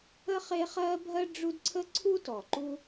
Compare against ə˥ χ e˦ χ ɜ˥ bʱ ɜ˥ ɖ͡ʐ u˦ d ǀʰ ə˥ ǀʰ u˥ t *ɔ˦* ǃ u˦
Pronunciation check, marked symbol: incorrect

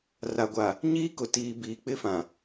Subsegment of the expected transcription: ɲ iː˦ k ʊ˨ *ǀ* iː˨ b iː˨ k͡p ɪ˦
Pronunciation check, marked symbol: incorrect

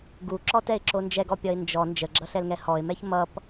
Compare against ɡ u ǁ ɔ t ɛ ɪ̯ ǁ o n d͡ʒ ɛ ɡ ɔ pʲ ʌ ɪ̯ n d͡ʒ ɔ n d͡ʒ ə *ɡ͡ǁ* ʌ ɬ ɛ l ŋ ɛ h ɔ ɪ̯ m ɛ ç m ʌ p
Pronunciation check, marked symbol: correct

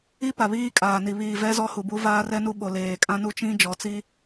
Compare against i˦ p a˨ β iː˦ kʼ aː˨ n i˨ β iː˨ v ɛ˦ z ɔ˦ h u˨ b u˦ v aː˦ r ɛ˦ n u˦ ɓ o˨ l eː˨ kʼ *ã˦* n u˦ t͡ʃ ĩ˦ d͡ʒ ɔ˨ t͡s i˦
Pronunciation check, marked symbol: correct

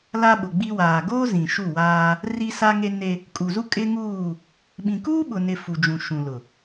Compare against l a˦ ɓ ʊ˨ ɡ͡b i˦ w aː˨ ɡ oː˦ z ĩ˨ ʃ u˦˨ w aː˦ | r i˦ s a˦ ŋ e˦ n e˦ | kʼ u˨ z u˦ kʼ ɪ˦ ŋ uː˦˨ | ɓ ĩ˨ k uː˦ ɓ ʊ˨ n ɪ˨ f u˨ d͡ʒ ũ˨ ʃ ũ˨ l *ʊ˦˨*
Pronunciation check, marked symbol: incorrect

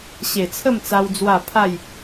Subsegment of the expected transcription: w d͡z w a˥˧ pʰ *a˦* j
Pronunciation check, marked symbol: incorrect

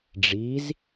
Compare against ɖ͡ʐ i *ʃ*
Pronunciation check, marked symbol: incorrect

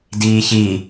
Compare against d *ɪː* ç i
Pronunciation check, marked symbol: incorrect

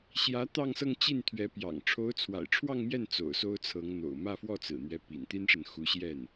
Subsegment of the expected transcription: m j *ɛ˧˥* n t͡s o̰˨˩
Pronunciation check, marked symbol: incorrect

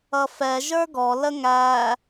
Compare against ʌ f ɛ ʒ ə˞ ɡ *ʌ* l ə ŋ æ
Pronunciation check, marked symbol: incorrect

